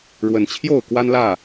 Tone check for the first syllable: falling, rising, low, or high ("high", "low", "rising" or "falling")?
rising